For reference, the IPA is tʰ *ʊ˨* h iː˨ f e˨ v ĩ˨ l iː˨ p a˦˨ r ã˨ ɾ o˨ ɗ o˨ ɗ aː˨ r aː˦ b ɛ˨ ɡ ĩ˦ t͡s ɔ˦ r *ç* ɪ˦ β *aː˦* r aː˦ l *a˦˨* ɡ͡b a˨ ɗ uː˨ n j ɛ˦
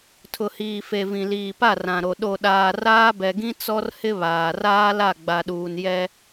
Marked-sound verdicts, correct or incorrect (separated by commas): correct, incorrect, incorrect, correct